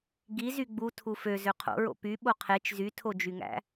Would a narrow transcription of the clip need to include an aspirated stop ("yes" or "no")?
yes